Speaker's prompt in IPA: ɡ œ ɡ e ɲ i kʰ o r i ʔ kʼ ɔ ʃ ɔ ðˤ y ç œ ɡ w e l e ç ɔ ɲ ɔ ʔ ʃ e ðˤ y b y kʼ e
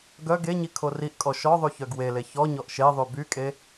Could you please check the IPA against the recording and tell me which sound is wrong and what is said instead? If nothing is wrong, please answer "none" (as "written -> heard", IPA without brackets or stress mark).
none